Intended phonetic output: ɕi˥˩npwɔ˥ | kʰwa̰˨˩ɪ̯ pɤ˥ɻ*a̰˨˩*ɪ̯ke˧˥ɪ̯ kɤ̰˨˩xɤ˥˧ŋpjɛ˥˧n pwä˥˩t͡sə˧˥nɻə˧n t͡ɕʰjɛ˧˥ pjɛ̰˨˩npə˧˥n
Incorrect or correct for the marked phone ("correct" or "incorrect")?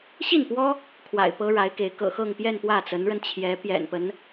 incorrect